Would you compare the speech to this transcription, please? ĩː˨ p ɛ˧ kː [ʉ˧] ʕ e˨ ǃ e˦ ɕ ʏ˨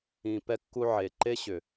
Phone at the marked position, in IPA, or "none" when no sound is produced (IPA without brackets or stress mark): u˧